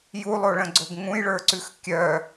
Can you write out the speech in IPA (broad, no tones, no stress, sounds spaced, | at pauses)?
j u lˠ o ɭ ə̃ ɡ͡ǀ o ɡ ŋ ũ j ɭ ə˞ ǀ ʉ x kʲ œ